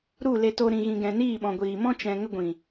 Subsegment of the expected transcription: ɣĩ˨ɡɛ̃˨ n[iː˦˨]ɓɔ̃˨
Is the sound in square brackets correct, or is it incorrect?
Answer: correct